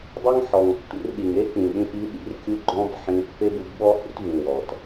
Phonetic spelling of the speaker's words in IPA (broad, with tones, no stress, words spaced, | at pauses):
dˤʏ˦ŋħɔ˨ŋtːṵ˧rɗi˨ŋ e˦k͡pĩ˨ɗĩ˧ʔi˨˦ ɗḭ˦rkʲu˦ ɡ͡ǃɔ̃˦bħĩ˧ pːe˦bu˧bɓɔ˦hṵ˦t vĩ˧ wɔ˨t